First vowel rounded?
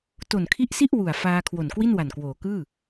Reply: yes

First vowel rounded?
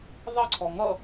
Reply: no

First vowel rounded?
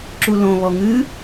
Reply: yes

